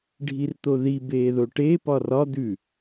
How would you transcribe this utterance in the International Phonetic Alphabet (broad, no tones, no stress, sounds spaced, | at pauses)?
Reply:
ɖʱ i r t̪ o ð i b eː ð o ʈ e p ɒ r ɒ d̪ ʉ